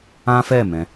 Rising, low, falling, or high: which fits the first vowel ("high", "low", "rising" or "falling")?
high